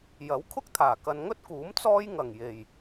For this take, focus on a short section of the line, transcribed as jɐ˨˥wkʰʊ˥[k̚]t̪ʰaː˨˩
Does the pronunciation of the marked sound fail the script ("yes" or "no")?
no